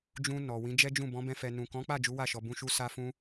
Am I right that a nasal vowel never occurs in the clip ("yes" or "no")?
no